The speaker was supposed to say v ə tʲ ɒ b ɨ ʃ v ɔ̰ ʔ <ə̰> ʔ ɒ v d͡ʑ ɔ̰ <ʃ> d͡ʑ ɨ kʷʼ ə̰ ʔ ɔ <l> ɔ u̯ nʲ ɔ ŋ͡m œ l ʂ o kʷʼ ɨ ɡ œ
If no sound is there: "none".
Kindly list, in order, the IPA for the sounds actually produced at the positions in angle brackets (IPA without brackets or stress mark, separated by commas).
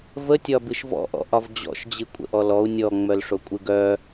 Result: ɔ̰, ʃ, l